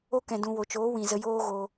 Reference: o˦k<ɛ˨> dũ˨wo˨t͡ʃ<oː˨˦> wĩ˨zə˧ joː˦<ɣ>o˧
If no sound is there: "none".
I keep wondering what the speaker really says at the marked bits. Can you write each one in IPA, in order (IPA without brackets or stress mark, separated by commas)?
ɛ̃˨, oː˨˦, ɣ